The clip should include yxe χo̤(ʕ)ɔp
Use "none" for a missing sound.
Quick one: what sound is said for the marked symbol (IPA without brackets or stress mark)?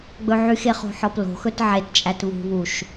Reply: ħ